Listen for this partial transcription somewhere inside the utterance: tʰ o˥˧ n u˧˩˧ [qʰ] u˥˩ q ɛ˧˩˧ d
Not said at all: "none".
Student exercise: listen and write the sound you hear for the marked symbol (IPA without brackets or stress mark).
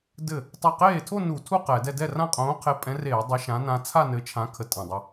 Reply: tʰ